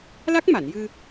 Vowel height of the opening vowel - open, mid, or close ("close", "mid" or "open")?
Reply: open